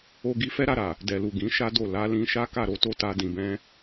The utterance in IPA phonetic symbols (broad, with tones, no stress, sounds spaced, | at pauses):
o˧ ɡ i˧ f ɛ˦ ɾ a˧ ɾ a˨ | d ɛ˨ l u˨ ɡ ĩ˨˦ ʃ a˦ d o˦˨ l a˨˦ l ĩ˧ ʃ a˦ k a˦˨ ɾ o˨˦ t o˦ t a˧ d ĩ˨ b ɛ̃˧